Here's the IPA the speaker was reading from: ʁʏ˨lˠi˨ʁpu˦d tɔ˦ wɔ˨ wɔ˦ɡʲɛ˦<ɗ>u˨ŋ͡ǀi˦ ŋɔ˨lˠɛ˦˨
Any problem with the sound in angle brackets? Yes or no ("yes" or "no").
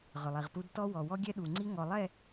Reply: no